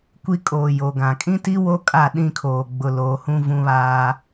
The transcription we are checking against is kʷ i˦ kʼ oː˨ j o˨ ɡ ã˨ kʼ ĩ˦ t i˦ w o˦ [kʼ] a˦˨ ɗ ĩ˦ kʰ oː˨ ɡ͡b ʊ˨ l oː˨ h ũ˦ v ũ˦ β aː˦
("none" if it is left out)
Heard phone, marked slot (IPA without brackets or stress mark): kʼ